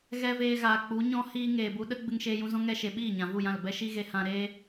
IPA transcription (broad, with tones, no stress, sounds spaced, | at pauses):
ɣ ɛ˦ v eː˧ ɣ aː˨ k͡p u˨˦ ɲ ɔ̃˦ h iː˧ ŋ eː˨ b u˧ ɗ ə˦ ɡ͡b ɨ˧ ŋ ʃ eː˧ j ũ˧ z ɔ̃˦ ŋ ɛ˧ ʃ e˨ ɓ iː˦˨ ɲ ã˨ v u˦˨ j ã˦˨ l b ɛ˧ ʃ i˧ ɣ e˧ h ã˧ ɾ eː˦